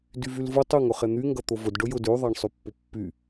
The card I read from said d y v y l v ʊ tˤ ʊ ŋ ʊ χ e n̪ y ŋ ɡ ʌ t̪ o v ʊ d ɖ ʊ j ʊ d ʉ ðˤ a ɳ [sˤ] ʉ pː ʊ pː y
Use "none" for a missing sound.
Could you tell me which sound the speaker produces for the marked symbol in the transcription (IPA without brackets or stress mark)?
sˤ